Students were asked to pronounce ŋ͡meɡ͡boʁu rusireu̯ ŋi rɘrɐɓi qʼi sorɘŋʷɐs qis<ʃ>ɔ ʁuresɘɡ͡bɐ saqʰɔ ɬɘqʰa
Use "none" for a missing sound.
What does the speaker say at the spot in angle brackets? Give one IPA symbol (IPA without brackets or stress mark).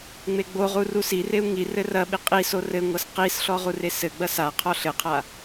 ɬ